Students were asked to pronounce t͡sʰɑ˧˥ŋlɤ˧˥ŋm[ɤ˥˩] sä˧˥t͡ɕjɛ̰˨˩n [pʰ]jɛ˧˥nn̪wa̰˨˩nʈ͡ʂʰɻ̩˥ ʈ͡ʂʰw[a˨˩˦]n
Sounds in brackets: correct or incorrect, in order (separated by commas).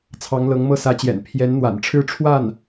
correct, correct, incorrect